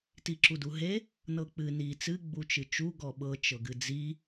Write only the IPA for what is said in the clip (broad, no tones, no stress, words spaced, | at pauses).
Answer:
tiǁuduɦe | nɤk͡pɨ ni t͡sɨ ɡ͡but͡ʃɨt͡ʃu ɡɔɓɤ t͡ʃɤɡɨd͡zi